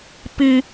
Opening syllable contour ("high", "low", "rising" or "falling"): high